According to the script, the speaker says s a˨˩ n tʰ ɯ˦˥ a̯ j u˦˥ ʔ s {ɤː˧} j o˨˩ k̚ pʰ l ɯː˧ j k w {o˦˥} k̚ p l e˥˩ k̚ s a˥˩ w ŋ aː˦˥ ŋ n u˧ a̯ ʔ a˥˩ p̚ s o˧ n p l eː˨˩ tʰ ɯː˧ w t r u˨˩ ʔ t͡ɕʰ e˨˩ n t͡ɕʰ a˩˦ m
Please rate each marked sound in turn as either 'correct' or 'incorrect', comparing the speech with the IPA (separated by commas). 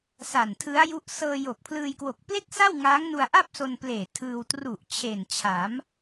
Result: correct, incorrect